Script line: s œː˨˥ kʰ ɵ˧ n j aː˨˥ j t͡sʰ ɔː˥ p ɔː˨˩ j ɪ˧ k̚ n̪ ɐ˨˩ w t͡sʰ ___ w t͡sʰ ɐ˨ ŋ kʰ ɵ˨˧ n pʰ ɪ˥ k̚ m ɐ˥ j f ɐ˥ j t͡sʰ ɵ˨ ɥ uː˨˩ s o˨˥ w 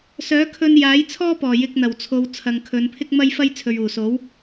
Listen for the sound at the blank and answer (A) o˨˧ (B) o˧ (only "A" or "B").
A